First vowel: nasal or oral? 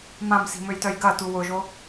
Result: nasal